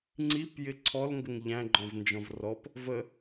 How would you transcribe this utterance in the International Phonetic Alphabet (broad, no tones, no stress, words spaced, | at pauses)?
ŋ͡ǀipjɪ ǀʰɔlŋɡəŋ ʎæ̃ɡ͡ǃɔ̃vnd͡ʒɔ̃v rɔp | və